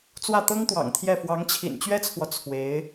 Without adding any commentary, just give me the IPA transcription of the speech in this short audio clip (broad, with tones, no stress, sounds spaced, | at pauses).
t͡s w ä˥˩ t̪ ɤ˥ ŋ t̪ w ɑ̰˨˩ ŋ t̪ʰ j ɛ˥˩ f w ɑ˧˥ ŋ t͡ɕʰ ḭ˨˩ n t͡ɕ ɥ ɛ˥ t͡sʰ w ɔ˨ t͡sʰ w e˧˥ ɪ̯